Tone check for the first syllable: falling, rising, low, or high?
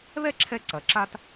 high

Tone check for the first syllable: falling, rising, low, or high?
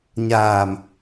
low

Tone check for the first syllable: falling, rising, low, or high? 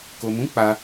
low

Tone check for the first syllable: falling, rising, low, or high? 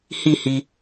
falling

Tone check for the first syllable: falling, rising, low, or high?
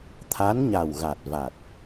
rising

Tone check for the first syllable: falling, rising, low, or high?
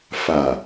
low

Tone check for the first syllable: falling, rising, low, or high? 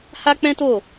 high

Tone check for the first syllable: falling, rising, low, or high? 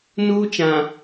high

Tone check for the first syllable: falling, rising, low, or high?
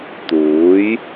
rising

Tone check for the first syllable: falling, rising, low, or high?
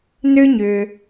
high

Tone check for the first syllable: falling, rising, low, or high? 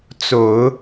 low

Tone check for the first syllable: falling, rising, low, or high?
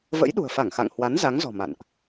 rising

